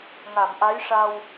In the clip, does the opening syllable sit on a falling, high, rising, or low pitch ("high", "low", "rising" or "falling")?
low